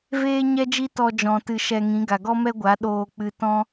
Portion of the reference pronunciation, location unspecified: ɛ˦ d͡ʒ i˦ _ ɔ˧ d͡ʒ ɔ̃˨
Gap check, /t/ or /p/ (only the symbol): t